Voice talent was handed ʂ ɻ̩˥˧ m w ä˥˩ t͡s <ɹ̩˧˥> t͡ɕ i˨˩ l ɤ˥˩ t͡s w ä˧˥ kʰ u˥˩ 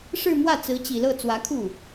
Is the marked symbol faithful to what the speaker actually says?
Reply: yes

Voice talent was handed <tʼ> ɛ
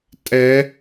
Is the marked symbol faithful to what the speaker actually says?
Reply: yes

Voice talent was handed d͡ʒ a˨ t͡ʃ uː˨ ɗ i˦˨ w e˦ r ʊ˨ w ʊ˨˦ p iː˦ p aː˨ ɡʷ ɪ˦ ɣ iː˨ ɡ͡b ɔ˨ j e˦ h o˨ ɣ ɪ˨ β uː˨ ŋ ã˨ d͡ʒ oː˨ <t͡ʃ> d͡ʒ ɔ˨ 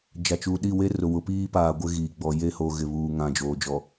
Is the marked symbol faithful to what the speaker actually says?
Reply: no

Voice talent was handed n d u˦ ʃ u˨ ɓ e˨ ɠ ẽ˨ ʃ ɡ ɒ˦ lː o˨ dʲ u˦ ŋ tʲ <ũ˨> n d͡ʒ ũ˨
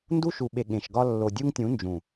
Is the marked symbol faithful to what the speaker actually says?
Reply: no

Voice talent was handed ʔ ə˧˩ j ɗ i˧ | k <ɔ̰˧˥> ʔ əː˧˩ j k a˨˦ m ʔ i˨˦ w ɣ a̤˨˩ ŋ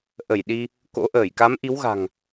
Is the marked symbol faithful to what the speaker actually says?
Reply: no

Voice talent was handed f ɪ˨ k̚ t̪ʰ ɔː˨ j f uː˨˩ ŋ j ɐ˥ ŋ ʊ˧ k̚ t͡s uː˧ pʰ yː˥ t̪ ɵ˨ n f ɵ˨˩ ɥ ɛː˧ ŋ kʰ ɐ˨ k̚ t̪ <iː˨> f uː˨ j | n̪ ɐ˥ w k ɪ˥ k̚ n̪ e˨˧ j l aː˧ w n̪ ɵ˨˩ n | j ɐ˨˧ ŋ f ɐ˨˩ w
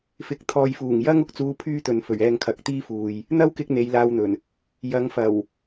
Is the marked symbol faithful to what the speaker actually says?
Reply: no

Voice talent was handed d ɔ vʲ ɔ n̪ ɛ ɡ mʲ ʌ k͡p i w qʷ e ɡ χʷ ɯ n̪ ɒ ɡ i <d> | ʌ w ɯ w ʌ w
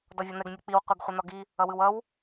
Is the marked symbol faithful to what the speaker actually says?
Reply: no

